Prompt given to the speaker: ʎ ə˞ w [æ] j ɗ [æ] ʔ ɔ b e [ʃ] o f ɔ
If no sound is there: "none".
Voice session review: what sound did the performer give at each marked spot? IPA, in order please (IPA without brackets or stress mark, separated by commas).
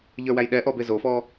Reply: æ, ɛ, z